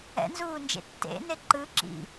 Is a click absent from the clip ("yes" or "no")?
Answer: no